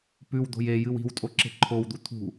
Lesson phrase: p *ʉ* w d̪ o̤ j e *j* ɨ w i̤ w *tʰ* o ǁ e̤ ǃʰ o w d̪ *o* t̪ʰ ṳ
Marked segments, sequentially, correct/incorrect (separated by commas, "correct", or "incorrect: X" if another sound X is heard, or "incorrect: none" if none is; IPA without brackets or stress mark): correct, correct, incorrect: tʼ, incorrect: u